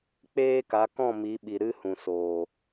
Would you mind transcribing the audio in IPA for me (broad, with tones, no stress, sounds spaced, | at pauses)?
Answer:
k͡p eː˦ k a˨˦ k ɔ̃˦˨ m i˨˦ ɓ i˨ ɾ ɨ˦ h ũ˨ s oː˨